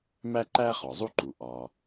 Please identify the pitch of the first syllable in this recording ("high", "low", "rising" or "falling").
high